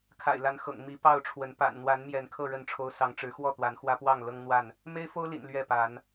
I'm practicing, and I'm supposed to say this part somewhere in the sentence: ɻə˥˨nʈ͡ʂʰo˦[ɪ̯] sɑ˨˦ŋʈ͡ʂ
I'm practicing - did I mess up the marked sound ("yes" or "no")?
yes